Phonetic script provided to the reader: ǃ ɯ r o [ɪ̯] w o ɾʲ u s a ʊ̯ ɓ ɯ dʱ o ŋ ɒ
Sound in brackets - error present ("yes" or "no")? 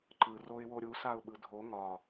no